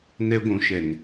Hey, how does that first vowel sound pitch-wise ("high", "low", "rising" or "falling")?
high